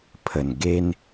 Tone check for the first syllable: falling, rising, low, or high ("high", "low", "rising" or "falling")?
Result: low